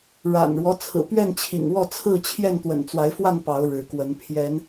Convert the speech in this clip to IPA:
ɻ a̰˨˩ n ɻ w ɔ˦ t͡sʰ ɹ̩˨˩ p ɥ ɛ˥˨ n t͡ɕʰ ḭ˨˩ ŋ w ɔ˥˨ t͡sʰ ɹ̩˥˨ t͡ɕʰ j ɛ˥˨ n t̪ w ə̰˨˩ n t͡s w a˨˦ ɪ̯ f w a˥˨ n p ɑ˨˦ ʊ̯ ɻ ɻ̩˨˦ k w ə˨˦ n pʰ j ɛ˨˦ n

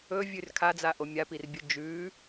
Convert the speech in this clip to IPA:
ɵ vʲ ʉ r kʰ a d͡z a ʔ o mʲ a p i r bʲ ɵ d͡ʒ ʉ

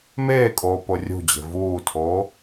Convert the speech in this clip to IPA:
m eː kʼ oː p o rʲ ṳ d͡ʑ e̤ v uː tʰ oː

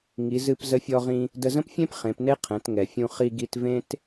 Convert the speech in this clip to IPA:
ŋ i˩˧ z ɨ˧ p z ə˧˥ fʲ ɔ˧ ʁ ĩ˧ | d ə˧ z ə̃˥ p fʲ ẽ˥ p χ ẽ˩˧ p n e˥ qʰ ɛ̃˩˧ t ŋ ɛ˩ fʲ ũ˧ χ i˧ ɡ i˧ t v ẽ˥ t

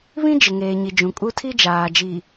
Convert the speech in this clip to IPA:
β ĩ˦ d͡ʒ ɪ˨ ŋ eː˨ ɲ i˨ d͡ʒ ũ˨ kʼ u˦ tʰ i˦ d͡ʒ aː˨ d͡ʒ i˨

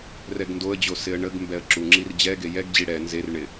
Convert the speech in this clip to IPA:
r ɛ ɡ n d o ə̯ d͡ʑ o s ɪ ə̯ ɳ ə ɡ m b ɛ ə̯ ǁ u ŋ͡ǁ i r d͡ʑ ɛ ɡ e j ɛ ɡ d͡ʑ i ɽ ɛ n z e r ɳ ɪ

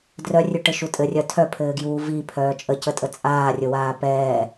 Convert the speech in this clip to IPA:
d r œ rʲ ʉ ʈ ɘ ʃ u tʼ ɘ rʲ œ tʰ œ pʰ ɘː ɡ j uː v i pʰ œː t͡ʃʼ ə c ə tʼ ə t͡sʼ aː rʲ ɵ w aː p ɛː

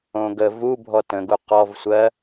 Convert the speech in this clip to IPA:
õ ɡ ə v u bʱ ɔ t ə̃ ɡ u q ɔ v sʷ ɜ

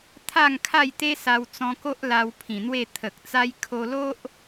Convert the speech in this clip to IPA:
t̪ʰ a˥˧ ŋ kʰ a˥˧ j t̪ e˦ s a˧ w t͡s ɔ̃˧ k o˦ ʔ l a˧ w pʰ ĩ˨˩ n̪ w e˥˧ t̪ʰ ə˨ k̚ t͡s a˦ j kʰ o˧ l o˦ ʔ

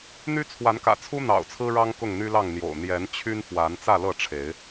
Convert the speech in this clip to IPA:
n̪ y˦ t͡sʰ w a˨˦ n k ä̰˨˩ t͡sʰ u˦ n̪ ɑ̰˨˩ ʊ̯ t͡sʰ ɹ̩˦ ɻ ɑ˦ ŋ k ʊ˥˨ ŋ n̪ y˦ l ɑ˥˨ ŋ n̪ j o̰˨˩ ʊ̯ n̪ j ɛ˨˦ n t͡ɕʰ y˦ n f w a˨˦ n t͡s ä˥˨ l ɤ˥˨ ʈ͡ʂʰ e˨˦ ɪ̯

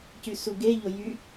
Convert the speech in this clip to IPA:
c y s u ɡ e ʎ o j y

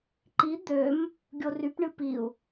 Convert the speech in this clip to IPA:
ǃ i d̪ ø m | ɡʲ o r y p ɳ ɨ p i u̯

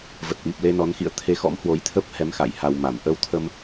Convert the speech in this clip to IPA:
v ə˨˩ t̚ ʔ i˨˩ p̚ l e˧ n ɔ˨˦ n x ḭ˧˨ ə̯ t̪ʰ e˨˦ x ɔ̰˧˥ m h w o˨˦ j t̪ʰ ə˦˥ p̚ h ɛ˨˦ m x a̰˧˨ j h a˧ w m a˧˩ m ʔ ə˧ w t̪ʰ ə˧ m

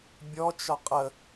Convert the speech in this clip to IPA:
bʲ ɔ t͡ʃ ɒ qʼ ə

